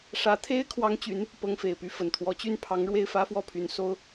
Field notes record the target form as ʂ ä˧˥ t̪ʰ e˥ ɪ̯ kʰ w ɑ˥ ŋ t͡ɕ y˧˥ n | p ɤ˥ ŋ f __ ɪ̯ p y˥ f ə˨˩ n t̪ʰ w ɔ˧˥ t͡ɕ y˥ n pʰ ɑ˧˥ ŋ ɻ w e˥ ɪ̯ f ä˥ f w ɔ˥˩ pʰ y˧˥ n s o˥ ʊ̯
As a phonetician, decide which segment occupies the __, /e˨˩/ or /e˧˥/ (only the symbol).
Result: e˨˩